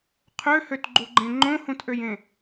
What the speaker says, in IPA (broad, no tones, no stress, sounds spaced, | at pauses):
qʰ ø h ø t ɡ͡ǃ u ɡ͡ǃ ẽ ŋ͡ǃ õ h ũ t ʔ ø j ẽ